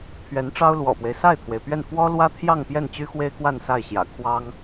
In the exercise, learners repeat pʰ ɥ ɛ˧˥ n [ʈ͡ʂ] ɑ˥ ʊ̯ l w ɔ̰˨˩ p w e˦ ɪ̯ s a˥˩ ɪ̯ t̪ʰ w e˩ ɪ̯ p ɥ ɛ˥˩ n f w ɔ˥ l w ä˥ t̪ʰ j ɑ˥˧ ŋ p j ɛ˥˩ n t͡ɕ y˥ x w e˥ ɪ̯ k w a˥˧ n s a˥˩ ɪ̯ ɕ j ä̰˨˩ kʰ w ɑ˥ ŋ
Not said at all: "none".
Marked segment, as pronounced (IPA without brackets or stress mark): ʈ͡ʂ